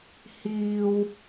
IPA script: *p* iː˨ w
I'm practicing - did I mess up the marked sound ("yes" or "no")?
yes